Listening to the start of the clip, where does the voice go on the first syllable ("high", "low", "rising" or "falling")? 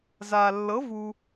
low